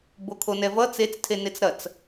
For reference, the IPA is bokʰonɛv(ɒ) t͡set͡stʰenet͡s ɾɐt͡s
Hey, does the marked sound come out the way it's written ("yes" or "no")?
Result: no